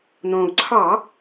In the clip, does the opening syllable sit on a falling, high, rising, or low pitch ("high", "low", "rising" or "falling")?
low